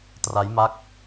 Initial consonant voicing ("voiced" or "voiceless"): voiceless